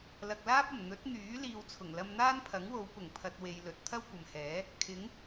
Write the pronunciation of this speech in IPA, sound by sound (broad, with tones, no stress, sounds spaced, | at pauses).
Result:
l ɐ˨ k̚ l aː˥ p̚ ɐ˨˩ m n̪ ɵ˨˥ t̚ n̪ yː˨˥ l iː˧ w t͡sʰ ʊ˨˩ ŋ l ɐ˧ m n̪ aː˥ n pʰ ɐ˨˥ ŋ w o˨˧ w p ʊ˨˩ ŋ pʰ ɐ˨ t̚ w e˧ j l ɵ˨˥ t̚ t̪ʰ ɐ˥ w kʷ ɐ˨ m h ɛː˨˥ | kʰ ɪ˨˥ ŋ